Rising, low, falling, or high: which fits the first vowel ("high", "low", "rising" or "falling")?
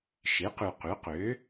rising